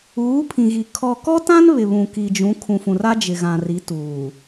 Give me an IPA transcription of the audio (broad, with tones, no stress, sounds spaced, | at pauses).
uː˨˦ pʰ ĩ˨ ɣ i˨ kʰ ɔ˨ k ɔ˦ t ã˦ n β ɪ˨ β ũ˨ k i˨ d͡ʒ ũ˨˦ kʰ ũ˨ f ũ˨ r a˦ d͡ʒ ɪ˨ ɣ ã˨ r i˨˦ t uː˨